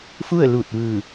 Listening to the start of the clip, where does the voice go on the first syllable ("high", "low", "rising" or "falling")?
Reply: falling